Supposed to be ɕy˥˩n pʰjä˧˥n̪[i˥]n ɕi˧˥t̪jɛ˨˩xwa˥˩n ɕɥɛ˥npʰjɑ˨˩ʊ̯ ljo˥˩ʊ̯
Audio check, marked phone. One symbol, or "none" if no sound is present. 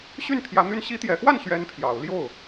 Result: y˥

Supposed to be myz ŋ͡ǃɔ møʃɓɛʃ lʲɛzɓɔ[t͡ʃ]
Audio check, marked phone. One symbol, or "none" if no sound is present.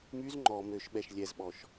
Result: ʃ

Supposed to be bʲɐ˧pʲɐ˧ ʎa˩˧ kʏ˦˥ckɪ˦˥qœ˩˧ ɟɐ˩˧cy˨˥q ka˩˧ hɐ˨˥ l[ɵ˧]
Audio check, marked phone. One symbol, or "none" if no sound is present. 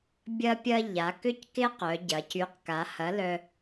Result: œ˧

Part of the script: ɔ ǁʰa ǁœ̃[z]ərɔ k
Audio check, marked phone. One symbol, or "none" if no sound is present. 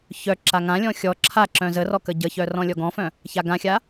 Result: z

